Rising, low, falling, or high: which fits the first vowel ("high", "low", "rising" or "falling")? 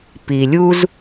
low